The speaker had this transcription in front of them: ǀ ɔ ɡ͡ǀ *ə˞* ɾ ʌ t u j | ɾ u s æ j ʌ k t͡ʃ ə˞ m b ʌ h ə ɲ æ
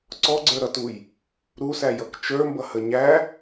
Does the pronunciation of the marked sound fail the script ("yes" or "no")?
no